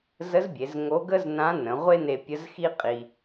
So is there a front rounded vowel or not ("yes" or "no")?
no